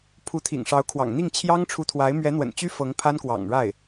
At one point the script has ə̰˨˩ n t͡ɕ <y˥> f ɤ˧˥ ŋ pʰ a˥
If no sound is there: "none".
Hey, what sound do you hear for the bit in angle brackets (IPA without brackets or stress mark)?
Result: y˥